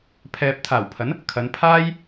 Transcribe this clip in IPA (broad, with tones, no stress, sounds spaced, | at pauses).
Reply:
pʰ ɛː˨ p̚ t̪ʰ aː˨˩ w pʰ ɐ˨˥ n | kʰ ɐ˨˧ n pʰ aː˥ j